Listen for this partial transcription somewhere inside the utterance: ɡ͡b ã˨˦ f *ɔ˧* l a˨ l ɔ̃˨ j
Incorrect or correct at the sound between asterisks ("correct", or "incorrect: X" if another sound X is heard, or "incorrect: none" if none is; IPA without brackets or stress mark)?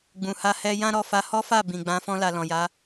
incorrect: ɔ̃˧